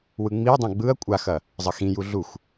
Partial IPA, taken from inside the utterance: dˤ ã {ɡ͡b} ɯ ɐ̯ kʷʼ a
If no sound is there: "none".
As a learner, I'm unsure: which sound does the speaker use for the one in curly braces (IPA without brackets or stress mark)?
ɡ͡b